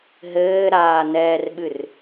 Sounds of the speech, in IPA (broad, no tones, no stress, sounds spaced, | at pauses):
ɦ ɘː ɾ aː n ɛː r ɓ ɨ r